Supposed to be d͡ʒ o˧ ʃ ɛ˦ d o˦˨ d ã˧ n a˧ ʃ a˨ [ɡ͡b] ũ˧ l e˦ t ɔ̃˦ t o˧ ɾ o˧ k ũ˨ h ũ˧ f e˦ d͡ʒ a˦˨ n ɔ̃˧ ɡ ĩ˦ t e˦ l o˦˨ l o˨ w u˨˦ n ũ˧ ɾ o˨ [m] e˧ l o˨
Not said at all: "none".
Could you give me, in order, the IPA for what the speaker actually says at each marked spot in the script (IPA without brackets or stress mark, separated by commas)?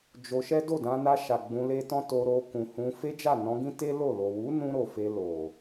ɡ͡b, f